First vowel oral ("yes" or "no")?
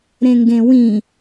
no